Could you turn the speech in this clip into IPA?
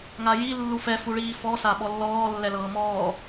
ŋ a j i lː u f ɛ f u ɭ iː f ɔ s a ɓ ɔ lː ɔː lː ɛ l ɤː m ɔː

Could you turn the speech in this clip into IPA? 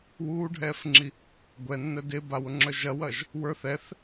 w uː ɖʱ ɛː f ŋ͡ǁ i | ɡʷ ɛ nː œ d e b a w ʊ ŋ͡ǁ œ ʒ ɐ w ɐ ʒ | w ə˞ θ ɛ θ

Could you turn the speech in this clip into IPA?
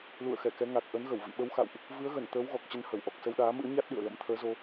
l ṵ˧˨ ə̯ x ɛ˧˩ k ɛ˨˦ ŋ a˨˩ k̚ ʔ ə˨˦ n ɣ ə˧˩ w v ḭ˧˨ ɓ ə˨˦ w x a̰˧˨ w ʔ | v ɨ˨˦ ə̯ ɣ ə˧˩ n t̪ əː˨˦ w ɣ ɔ˨˩ k̚ t͡ɕ ə˧ n h ə˧˩ w ʔ ɔ˨˩ k̚ s ə˧ w ɗ aː˨˦ m ɨ̰˧˥ ə̯ ɲ a˦˥ t̚ ɗ ɨ̰˧˨ ə̯ l ə̰˧˥ m t̪ʰ əː˨˦ z o˧

